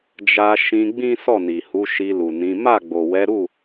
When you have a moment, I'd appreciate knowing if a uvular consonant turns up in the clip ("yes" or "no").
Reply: no